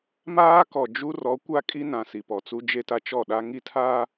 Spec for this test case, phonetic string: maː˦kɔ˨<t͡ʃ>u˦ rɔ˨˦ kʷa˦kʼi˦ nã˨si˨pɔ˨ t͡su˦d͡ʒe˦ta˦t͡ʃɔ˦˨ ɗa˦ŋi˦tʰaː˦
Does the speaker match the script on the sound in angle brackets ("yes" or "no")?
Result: no